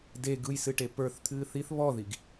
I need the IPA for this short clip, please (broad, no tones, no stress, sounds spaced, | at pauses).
d e ɡ ɯ j s ɨ ʈ e p ə˞ θ t̪ʰ ɨː θ i θ β ɔ ð i ɡ